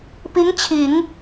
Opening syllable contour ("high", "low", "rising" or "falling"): rising